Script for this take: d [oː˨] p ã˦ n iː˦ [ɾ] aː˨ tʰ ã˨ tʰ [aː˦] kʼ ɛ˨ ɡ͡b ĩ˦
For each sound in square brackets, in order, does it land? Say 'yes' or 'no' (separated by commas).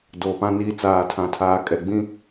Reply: yes, no, no